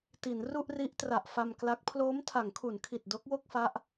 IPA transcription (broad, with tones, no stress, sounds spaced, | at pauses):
t i˩˦ n r u˥˩ ʔ r i˦˥ ʔ t r a˨˩ ʔ f a˧ m k l a˦˥ k̚ pʰ l oː˦˥ m tʰ a˩˦ ŋ kʰ u˩˦ n kʰ i˨˩ t̚ d o˦˥ k̚ w o˥˩ k̚ f a˦˥ ʔ